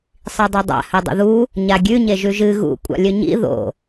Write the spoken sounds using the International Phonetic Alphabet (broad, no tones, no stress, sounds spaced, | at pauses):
sˤ i dˤ ɐ dˤ a̰ h ɵ dˤ o̰ ð u | ɲ a ɡʲ ʉ ɲ e ʒ ʉ ʒ ɨ ɣ ṵ kʷʼ a̰ lʲ ɵ ɲ ḭ ð o̰